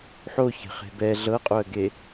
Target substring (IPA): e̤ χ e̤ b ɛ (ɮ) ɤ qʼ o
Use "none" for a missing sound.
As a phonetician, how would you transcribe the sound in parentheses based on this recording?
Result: ɮ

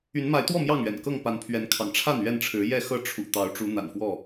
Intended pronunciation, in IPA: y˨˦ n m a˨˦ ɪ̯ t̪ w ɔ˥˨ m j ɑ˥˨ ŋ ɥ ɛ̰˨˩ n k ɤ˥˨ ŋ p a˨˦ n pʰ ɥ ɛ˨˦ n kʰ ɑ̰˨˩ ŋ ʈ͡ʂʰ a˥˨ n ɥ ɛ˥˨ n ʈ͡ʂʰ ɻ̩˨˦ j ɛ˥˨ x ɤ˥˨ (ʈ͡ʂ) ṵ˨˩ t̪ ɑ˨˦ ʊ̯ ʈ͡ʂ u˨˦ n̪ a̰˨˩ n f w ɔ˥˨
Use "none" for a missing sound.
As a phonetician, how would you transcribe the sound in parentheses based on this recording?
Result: ʈ͡ʂʰ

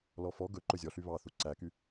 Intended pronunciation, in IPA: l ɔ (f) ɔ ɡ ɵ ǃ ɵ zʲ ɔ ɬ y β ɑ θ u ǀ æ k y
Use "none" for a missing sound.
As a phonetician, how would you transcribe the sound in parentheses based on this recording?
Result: f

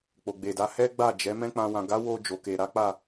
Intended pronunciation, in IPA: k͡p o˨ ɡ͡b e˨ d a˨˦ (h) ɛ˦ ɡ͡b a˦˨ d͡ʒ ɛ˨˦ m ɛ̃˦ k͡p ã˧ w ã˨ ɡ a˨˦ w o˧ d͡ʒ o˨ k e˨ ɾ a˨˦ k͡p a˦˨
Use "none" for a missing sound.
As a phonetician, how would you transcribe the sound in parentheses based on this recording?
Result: h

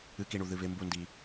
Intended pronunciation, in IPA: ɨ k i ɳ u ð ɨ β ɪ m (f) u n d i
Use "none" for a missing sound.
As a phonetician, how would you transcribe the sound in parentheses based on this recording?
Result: b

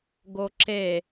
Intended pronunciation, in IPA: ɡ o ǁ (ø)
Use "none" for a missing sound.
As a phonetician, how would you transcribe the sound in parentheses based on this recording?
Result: e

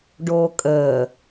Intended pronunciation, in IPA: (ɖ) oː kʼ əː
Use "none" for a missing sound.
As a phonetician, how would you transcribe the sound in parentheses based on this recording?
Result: ɖ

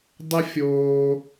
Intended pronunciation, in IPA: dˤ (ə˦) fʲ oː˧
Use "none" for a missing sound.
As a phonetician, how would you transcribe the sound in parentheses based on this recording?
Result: ə˦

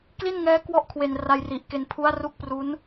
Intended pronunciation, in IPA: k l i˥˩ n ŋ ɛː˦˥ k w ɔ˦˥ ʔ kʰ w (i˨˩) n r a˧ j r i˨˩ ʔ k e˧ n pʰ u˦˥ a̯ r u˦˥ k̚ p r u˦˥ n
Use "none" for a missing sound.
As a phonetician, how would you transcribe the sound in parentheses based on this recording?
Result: e˨˩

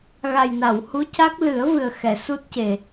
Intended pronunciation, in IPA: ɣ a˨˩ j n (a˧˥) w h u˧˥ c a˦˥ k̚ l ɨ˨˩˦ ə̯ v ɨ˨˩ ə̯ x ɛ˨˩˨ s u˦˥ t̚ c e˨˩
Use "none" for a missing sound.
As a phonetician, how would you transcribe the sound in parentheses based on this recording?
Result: a˨˩˨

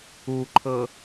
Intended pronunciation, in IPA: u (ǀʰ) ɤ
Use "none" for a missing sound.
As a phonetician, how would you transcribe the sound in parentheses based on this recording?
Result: ǃʰ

